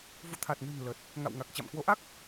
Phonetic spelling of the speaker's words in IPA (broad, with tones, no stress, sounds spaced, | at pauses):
v ṵ˧˨ t̪ʰ a˨˩ t̚ n ɨ̤˨˩ n l ə˨˩ t̚ | ŋ a̰˧˨ w ŋ a˨˩ k̚ t͡ɕ a̰˧˨ m k w o˨˦ ʔ a˦˥ k̚